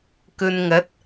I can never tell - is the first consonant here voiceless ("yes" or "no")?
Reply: yes